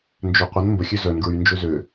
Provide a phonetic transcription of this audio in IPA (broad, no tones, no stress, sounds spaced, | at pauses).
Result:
n d͡ʒ ø qʷ ə n m b ə xʲ ø z œ n ɡ ɹ y n d͡ʒ ø z ø